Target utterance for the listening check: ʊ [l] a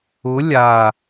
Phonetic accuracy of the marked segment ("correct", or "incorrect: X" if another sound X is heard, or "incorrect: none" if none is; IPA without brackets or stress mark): incorrect: lʲ